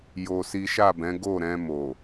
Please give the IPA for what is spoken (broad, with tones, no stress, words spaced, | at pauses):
jo˧si˦ ʃa˦˨bɛ̃˨˦ ɡo˦˨ɾɛ̃˧mo˨